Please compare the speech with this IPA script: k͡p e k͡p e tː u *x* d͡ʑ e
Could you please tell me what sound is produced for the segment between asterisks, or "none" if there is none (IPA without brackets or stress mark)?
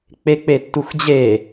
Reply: x